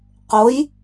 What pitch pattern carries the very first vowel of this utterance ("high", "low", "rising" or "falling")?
rising